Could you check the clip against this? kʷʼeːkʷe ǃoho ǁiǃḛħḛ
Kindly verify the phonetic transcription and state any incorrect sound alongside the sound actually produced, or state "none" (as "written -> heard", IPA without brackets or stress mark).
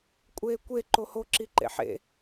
none